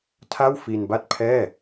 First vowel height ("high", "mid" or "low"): low